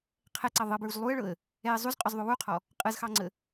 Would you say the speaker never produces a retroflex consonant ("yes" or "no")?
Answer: no